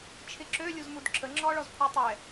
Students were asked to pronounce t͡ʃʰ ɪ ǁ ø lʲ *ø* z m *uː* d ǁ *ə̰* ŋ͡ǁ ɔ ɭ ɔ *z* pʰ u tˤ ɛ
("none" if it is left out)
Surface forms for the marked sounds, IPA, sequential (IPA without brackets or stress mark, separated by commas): u, u, ə, z